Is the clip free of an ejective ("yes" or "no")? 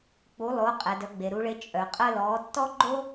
no